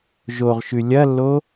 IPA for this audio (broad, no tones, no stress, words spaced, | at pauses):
ʒoʁʃʉ lʲɐlːo